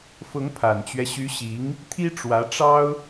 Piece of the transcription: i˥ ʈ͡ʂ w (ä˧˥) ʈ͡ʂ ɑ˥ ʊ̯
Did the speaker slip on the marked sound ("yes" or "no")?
no